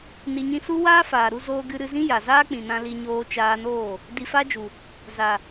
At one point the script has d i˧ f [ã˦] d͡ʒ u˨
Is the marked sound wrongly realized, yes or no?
yes